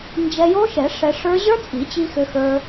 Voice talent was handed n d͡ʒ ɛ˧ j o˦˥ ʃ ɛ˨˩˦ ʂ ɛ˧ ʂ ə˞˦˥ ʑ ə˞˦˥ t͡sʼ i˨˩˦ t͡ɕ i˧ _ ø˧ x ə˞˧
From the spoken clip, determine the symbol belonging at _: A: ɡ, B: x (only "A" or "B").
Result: B